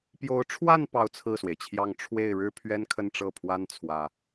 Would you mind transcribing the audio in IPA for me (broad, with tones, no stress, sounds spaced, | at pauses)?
p j o˧˥ ʊ̯ ʈ͡ʂʰ w a˥˧ n p ɑ˥˧ ʊ̯ t͡sʰ ɹ̩˥˩ s w e˩ ɪ̯ t͡ɕʰ j ɑ˥˧ ŋ ʈ͡ʂʰ w e˥˩ ɪ̯ ɻ ɻ̩˥ pʰ ɥ ɛ˥ n kʰ ə˥˧ n ʈ͡ʂ ɤ˥˩ pʰ w a˥ n t͡sʰ w ä˥